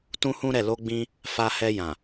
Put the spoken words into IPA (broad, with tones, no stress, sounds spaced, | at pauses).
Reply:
t ũ˦ h ũ˦ ɾ ɛ˦˨ l o˧ ɡ͡b ĩ˧ | f a˧ h ɛ˧ j ã˨